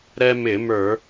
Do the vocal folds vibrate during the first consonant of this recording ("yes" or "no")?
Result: yes